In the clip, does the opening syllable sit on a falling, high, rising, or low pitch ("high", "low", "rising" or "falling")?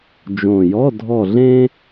low